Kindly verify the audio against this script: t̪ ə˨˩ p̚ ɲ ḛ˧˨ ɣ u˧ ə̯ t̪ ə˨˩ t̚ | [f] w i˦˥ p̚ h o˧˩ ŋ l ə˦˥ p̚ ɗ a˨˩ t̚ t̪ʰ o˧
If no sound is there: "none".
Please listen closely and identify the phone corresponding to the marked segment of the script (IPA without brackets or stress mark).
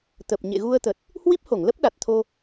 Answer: h